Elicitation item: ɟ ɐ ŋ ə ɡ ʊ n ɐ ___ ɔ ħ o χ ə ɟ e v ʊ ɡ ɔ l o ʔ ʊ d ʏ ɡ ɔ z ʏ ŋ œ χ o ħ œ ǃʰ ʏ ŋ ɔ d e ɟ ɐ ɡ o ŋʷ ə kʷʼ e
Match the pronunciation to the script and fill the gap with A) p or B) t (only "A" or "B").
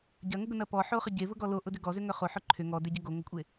A